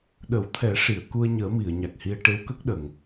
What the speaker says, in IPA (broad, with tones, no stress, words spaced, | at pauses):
ɗə˨˩˦wt̪ʰɛ˨˩˦ ʂi˨˩˨ə̯ku˧ə̯ɲəː˨˩˦ mi˨˩˨ə̯ɲa˨˩k̚hi˧ə̯ ʈe˧˥wkə˦˥k̚ɗə˨˩˨ŋ